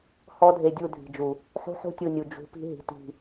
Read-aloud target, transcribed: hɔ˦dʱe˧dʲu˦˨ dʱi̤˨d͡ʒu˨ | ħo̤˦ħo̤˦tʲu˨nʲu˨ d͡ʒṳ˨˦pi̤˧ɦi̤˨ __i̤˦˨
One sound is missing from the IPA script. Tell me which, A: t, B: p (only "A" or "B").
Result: A